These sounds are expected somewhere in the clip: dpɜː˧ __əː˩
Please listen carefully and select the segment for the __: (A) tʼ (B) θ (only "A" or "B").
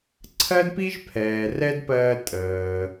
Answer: A